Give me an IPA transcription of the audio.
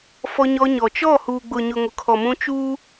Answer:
fɔ˦ɲɔ˦ɲɔ˨ t͡ʃɔ˦˨ huː˨ɡ͡bʊ˨ɲʊ˨ ŋʊ˨kʰɔ˨mũ˦ t͡ʃuː˦

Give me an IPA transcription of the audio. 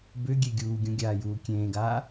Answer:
bʏ ɡʲeɡʲuːɡʲũ ɡʲaːjuːkʲẽːɡaː

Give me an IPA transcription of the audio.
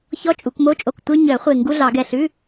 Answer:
çɔ˧˥˧t͡ʃʼu˨˩˦kmo˧˥˧t͡ʃʼo˧˩k tʷœ˧ɲœ˨˩˦ χʷe˧˩ ŋɡu˧˥˧ɮɑ˨˩˦ɡɛ˧˩ɬʉ˧˥˧

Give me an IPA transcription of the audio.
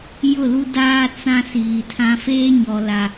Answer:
jʊ˦˨lu˦daː˦ t͡sã˦siː˨tʰã˦ feː˦ɲɔ˨la˨

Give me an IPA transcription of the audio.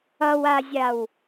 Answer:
ʌwazʲaw

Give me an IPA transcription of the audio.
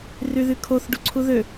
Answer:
ryðykʰoθ ɖuǀʰuðø

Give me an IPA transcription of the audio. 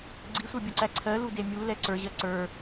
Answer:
ɡ͡ǀisʷə˞bʲuǀæ ǀʰɜ ludemʲu lɛǀə˞ʑɜ ǀə˞

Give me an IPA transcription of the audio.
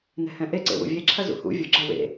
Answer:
nɛ̤hɛ̃ʔe ǀḛwṵvʲe ǁʰɐzṵhṵ vʲoɡ͡ǁɐ wḛ

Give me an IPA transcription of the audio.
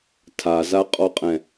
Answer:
tʰazaqʼɔqʼɛ̃

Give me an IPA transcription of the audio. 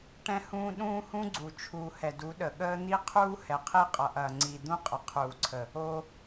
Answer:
ʈɛ̃˦hũː˦ ɗũː˦hũ˦ɡ͡ǀu˨ t͡ʃʰuː˨hɛ˨ du˨˦ɗə˨ɠəː˦ n̪i˦qʰuː˦ hɛ˨qʰi˦qʼʌ˨ʔɐː˨ ŋ͡ǀi˨d̪ũ˦qʼə˨ qʰuː˨ǀʰə˨ | o˧

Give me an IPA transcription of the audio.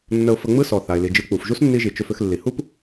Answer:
nːə˧ʊ̯fə˧ŋ͡mɯ˥sɔ˩ θa˩ɪ̯li˩d͡ʒɯ˧k͡pu˩f ʒu˥snːi˧ʒi˩ t͡ʃʏ˧fʏ˧xlːi˩ hu˥p

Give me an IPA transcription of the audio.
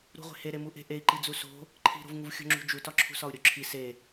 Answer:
ɾṳʁʷe̤ heɾemu ʔe̤ʔei̯ǃid͡zu so̤ | ǃʰi̤ɾo̤vŋuvxʲo̤ ŋ͡ǁṳd͡ʒutɒ ǁʰṳsɒu̯ɾʲoǁʰi se

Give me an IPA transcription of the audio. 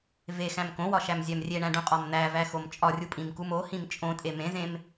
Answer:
vexæ̃m kõwɒʃæmzʲæm rʲeɳæ̃ɖũqʼɒm n̪ævæxom t͡ʃʼɒrʲupʼĩmkum ohĩm t͡ʃʼõtʼe mẽzẽm

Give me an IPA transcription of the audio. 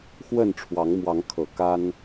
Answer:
xwə˥˨nʈ͡ʂʰwɑ˨˦ŋmwɑ˨˦ŋkʰɤ˨˩ ka˦n

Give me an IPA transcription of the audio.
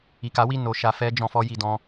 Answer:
i˨ka˨˦wi˦˨ no˧ ʃa˧fɛ˦d͡ʒɔ̃˧ fɔ˦ji˧dɔ̃˦

